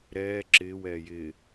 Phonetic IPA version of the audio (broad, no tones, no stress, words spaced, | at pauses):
ɾɛː ǁɪːw ɛːjɪː